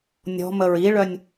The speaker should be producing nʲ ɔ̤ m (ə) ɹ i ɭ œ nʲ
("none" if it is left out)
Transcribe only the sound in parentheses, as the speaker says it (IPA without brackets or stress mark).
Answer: ə